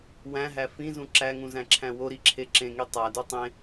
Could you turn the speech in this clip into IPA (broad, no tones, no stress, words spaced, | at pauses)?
wæ̃ɦæ fĩzũ ǁæŋũzæ̃ǁʰæ̃ woɾiǁʰe ǁẽŋi tˤædu tˤẽ